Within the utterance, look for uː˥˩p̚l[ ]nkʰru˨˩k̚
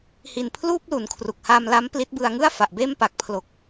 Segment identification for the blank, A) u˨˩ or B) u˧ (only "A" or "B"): A